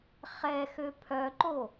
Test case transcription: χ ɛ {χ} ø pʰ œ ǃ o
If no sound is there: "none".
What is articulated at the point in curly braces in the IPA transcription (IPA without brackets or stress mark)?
x